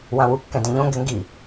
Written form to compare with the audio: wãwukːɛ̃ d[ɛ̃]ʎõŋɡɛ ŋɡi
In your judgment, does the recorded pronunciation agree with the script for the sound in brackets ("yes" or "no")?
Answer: yes